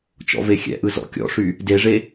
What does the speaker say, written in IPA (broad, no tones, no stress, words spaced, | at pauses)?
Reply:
t͡ʃɔ̰vexʲɛ̰ʔɯ zɔ̰kʲɔ̰ʂy | deʐe